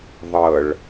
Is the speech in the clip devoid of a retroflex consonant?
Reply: no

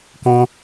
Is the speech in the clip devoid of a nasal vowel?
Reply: no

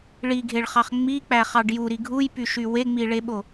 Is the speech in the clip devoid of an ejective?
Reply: yes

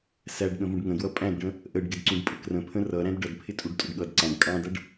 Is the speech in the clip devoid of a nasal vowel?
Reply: no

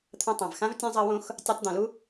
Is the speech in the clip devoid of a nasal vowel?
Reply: no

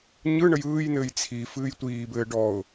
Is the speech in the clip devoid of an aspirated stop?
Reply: no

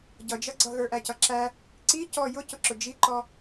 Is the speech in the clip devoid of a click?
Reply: no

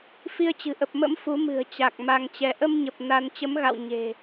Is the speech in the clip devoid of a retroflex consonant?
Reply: yes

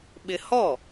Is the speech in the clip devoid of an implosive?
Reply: no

